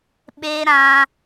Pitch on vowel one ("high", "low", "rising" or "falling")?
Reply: high